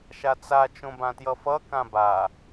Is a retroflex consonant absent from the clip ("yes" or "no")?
yes